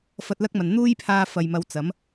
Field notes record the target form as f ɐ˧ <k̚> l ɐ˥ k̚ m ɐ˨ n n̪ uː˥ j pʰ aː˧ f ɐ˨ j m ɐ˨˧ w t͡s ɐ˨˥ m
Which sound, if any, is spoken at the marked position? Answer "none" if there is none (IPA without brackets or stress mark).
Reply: t̚